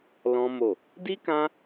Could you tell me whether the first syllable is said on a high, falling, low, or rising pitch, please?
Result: high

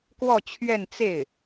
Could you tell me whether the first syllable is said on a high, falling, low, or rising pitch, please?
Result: falling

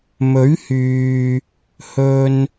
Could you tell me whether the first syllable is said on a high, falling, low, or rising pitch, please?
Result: rising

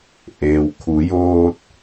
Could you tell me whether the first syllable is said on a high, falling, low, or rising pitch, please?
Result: low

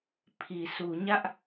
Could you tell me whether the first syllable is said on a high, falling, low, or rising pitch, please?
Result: low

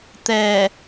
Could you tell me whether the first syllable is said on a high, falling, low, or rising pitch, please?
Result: low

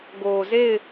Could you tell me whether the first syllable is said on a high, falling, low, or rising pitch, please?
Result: low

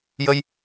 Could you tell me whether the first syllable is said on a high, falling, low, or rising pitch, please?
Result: high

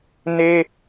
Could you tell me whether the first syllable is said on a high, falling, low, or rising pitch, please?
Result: high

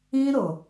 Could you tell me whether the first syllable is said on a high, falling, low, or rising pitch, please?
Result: high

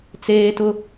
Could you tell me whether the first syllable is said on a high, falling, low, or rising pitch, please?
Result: high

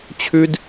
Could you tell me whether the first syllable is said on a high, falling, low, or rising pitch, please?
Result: high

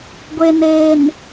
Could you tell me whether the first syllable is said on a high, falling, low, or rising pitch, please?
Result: low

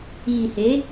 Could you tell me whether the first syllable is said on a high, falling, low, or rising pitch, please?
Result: low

